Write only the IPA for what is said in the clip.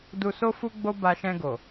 du˧so˦ fu˦ɡ͡bo˦ ba˧ʃɛ̃˧ɡo˨

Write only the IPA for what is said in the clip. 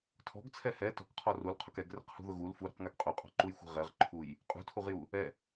tʰɔ̤ɡt͡sʰɛ hɛ tɔ̤kqʰɔ rulqʰʊk ɛɡrɛ̤qhṳðʊ ɣul fuɾṳqŋɛɡ qʼuqʼɔ̤ǃujxʷɛ̤ ʁɛʁǃʰuj | qʼṳtʰuʁju | ɛ

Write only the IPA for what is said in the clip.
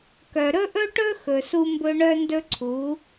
kœ˨ ɾɵ˦ʔɵ˦ʈɵ˦ xɵ˨su˦mbɵ˦ ɳœ˦ndɵ˦ǀʰu˨˦

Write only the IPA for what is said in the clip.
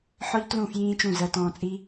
ħɔ˦ʎtlũ˦˨ fjĩː˦t͡ʃũ˦˨ zɜ˧ tɔ̃ː˧t͡sʼi˦

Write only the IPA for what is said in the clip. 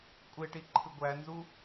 kʷʼeʈi ǃʰɯɡʷænzu

